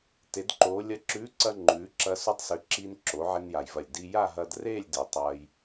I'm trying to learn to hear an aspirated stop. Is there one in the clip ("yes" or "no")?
no